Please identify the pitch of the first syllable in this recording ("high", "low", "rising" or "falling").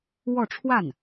falling